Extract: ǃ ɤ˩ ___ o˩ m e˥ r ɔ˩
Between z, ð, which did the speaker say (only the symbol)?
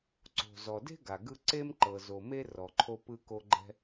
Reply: z